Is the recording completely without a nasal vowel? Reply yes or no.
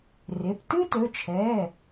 yes